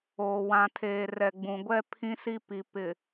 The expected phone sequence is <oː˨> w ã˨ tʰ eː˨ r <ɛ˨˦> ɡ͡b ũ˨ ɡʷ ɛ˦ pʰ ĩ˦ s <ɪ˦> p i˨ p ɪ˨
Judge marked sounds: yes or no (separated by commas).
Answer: yes, no, no